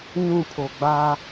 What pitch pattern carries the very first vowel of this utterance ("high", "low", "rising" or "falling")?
falling